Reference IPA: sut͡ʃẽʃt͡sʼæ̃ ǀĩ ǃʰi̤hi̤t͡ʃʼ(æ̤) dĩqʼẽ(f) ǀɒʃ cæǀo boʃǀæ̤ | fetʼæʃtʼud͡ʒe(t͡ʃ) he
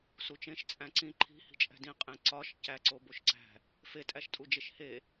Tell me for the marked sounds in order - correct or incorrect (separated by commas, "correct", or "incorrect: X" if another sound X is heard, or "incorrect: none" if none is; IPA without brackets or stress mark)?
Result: correct, incorrect: none, incorrect: ʃ